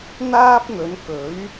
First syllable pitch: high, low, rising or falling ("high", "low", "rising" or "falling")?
high